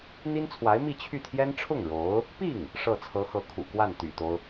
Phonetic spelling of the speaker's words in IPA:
n̪ i˥ n t͡sʰ w a˧˥ ɪ̯ m i˥˧ t͡ɕʰ y˥˩ t̪ʰ j ɛ˥ n ʈ͡ʂʰ ʊ˥˩ ŋ ɻ o˧˥ ʊ̯ | p i˥˩ ŋ | ʂ ɤ˥˩ t͡sʰ ɤ˧˥ x ɤ˧˥ kʰ ṵ˨˩ k w a˥˩ n t̪ y̰˨˩ t̪ o˦ ʊ̯

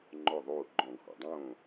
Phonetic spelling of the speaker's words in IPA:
ŋ͡ǃ ɔ˧˩ ðˤ oː˧˩ ɡ͡ǃ ɔ̃˧˩˧ ɡʱ ɔ̰˩ dˤ õː˥˨

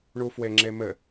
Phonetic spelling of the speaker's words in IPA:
ɳ u f w e ŋ͡ǁ e m ɘ

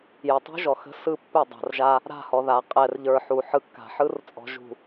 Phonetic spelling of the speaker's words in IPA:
j ə˨ tˤ ṳ˦ ʒ ɔ˨ x ə̤˦ s ɯ˦˨ pː ɪ˦˨ dˤ a̤˨ r ʒ a˦ | ɾ a̤˦˨ h ɔ˨ ð a˨ qʼ ɛ˨ r ʎ ə˞˨ ħ u˨ ħ ɯ˨ kː a̤˨ ħ ɯ˦ r t͡sʼ ɔ̤˨ ʒ ṳ˨

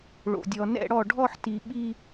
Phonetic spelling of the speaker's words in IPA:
ɭ o̰˩ dʲ ɔ˩ n ɛ̰˥˧ ɽ ɔ˧˩ ɖʱ ɔ˥˧ ħ t i˩ ɓ i˥˧

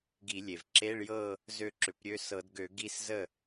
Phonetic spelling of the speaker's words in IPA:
ɡ i˧˩˧ lʲ e˩ v ǁ e˧˥˧ ɭ j ɤ˥˧ | z ø˥˧ ǁ ʏ˧˩˧ p ɾʲ ø˧˥˧ s ɤ˧˩˧ d ɡ ø˧˩˧ ɡ i˥˧ s z ə˥˩

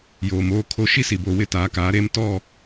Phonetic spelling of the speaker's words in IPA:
j oː˨ m oː˦ kʰ o˦ ʃ i˦ s i˨ b o˨ w ɪ˦ t aː˨˦ k aː˨˦ ɾ e˦ m t ɔ˦˨

